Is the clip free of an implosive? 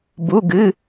yes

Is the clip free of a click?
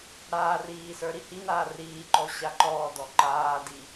no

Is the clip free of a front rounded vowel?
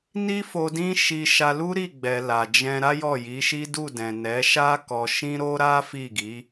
yes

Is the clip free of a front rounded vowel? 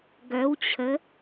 no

